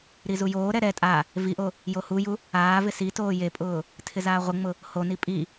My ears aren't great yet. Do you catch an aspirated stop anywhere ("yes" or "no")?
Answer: yes